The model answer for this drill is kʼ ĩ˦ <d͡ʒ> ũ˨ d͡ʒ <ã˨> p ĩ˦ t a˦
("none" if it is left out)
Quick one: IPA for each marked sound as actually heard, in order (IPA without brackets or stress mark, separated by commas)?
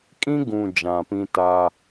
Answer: ɡ, ã˨